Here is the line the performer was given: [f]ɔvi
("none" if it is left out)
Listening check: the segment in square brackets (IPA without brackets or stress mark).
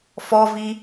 f